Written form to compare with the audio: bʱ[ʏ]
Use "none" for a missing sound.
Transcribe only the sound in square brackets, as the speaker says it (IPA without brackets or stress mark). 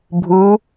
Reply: u